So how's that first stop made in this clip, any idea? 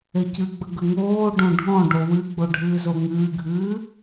plain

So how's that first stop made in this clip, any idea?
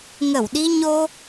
implosive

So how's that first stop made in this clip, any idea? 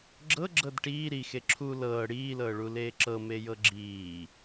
click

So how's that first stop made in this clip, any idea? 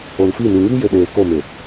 implosive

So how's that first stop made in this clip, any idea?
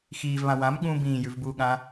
implosive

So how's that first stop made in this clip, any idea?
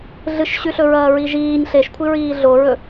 aspirated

